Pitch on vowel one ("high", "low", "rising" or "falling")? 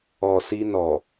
low